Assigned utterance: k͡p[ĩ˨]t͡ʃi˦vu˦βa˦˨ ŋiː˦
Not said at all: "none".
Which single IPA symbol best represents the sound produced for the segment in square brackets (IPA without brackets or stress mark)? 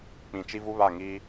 ĩ˨